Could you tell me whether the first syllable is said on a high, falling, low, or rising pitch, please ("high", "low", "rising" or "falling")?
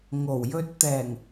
low